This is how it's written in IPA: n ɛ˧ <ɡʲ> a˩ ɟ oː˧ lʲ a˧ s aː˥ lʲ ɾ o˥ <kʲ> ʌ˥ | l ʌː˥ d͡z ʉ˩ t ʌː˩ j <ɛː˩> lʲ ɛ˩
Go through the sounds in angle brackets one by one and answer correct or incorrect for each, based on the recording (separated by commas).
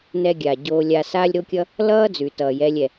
correct, correct, incorrect